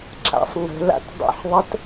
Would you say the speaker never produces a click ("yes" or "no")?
no